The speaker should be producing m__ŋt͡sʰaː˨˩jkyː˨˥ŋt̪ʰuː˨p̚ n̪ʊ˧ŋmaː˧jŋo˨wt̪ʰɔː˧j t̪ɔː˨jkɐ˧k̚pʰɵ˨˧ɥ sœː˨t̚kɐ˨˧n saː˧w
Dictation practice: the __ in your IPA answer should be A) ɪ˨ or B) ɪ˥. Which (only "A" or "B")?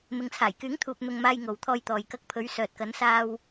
A